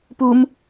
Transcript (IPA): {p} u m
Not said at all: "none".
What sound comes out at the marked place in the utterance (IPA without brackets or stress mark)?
p